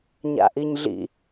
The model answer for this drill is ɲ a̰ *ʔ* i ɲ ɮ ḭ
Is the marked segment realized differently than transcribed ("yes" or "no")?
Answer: no